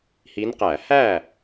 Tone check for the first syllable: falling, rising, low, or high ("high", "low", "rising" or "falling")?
rising